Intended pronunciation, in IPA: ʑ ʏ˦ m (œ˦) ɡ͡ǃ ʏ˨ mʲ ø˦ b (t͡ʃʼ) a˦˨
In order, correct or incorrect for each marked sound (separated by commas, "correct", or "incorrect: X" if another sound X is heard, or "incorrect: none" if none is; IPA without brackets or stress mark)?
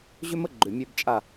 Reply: incorrect: ə˦, correct